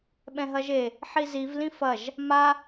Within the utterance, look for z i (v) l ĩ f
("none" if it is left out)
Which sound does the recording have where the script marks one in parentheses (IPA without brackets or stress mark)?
v